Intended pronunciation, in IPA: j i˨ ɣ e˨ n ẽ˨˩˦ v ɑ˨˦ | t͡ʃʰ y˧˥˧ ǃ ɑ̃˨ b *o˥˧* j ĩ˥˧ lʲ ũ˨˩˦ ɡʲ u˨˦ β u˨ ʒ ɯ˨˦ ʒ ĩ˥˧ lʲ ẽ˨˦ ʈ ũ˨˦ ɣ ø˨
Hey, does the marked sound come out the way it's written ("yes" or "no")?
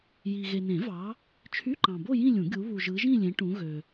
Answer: yes